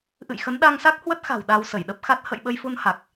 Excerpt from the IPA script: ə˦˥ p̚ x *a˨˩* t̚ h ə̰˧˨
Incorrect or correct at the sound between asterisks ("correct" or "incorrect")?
incorrect